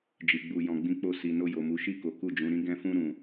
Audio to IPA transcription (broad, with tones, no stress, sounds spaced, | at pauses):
d͡ʒ i˨ ɡ͡b u˧ j ɔ̃˧ ɡ͡b ĩ˦ k͡p o˦˨ s i˧ n o˧ j o˨ m u˨˦ ʃ i˦˨ k o˨˦ k u˦˨ d͡ʒ ũ˨˦ ɾ ĩ˦ ɡ ɛ̃˦ f ũ˦ ɾ ũ˧